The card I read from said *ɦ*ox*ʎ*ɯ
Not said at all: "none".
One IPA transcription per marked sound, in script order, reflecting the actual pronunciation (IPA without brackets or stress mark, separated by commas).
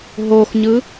ɦ, ɲ